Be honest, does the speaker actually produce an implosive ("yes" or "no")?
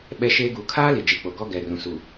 yes